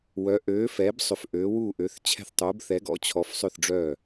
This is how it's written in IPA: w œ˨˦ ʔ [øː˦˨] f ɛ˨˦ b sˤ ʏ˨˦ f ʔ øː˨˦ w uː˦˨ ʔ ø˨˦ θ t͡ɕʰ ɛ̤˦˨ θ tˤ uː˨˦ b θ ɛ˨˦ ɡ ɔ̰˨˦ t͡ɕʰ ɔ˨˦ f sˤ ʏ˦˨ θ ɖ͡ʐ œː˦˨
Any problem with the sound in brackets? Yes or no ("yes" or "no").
yes